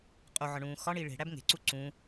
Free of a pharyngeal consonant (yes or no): no